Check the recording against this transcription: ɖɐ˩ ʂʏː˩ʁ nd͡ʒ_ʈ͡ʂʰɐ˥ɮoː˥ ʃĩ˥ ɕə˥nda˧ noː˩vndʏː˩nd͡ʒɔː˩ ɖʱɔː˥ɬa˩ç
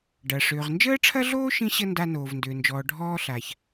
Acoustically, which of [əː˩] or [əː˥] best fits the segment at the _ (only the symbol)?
əː˥